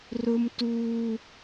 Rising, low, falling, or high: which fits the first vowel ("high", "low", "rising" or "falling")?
high